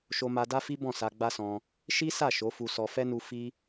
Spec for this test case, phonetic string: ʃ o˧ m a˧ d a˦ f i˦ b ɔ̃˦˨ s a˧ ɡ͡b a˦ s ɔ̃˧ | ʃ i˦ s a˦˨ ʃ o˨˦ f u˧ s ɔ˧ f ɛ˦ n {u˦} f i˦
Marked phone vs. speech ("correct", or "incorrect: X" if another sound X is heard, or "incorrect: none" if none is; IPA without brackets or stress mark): incorrect: u˧